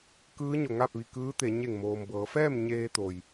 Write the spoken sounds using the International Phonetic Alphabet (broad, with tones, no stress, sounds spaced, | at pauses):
k ɯː˧˥ ɲ o˩ ŋ a˥˨ p̚ ʋ i˧˩ k ɯː˧˥ t̪ e˩˧ ɲ e˧˩ ŋ m oː˩ m b ɤː˩˧ f ɛː˥˨ m ɲ eː˧ t̪ o˩ j